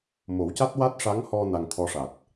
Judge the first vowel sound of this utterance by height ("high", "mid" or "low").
mid